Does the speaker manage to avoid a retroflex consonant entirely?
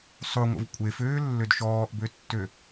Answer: yes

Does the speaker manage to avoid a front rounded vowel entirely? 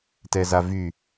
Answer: no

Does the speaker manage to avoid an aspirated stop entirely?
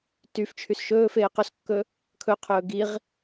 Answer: no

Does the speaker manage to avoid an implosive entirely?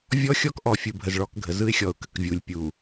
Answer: yes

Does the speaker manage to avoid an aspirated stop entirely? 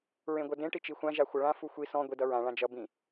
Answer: yes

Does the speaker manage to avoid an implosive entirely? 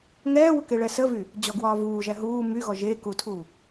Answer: yes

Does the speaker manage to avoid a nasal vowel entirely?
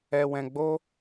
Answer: no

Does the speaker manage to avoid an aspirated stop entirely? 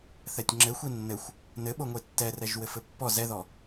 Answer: yes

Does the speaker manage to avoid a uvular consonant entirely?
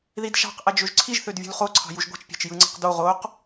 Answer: no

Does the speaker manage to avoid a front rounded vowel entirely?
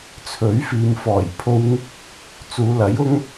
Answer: yes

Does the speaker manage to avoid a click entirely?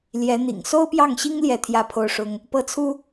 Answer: yes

